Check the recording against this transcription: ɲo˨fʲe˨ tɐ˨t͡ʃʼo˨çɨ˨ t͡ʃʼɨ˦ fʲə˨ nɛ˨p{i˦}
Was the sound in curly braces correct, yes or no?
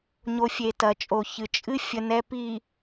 no